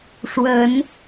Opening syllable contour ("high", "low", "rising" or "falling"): rising